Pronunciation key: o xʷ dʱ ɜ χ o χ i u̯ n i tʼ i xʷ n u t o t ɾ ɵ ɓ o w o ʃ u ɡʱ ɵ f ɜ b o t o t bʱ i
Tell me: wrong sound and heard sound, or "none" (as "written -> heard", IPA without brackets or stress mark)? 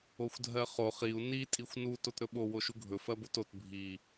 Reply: none